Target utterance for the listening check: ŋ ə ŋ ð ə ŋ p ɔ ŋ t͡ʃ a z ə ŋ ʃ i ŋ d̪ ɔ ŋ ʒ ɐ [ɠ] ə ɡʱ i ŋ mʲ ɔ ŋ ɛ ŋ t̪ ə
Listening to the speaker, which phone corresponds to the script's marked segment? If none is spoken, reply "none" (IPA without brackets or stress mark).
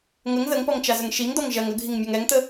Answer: ŋ